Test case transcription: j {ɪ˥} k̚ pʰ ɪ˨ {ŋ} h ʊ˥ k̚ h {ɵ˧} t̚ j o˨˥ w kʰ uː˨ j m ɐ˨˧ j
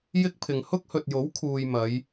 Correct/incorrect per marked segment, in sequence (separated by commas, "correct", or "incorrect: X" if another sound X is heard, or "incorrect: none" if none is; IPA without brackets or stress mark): correct, correct, incorrect: ɵ˨